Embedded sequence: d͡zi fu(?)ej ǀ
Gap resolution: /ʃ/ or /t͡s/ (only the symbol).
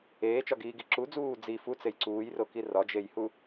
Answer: t͡s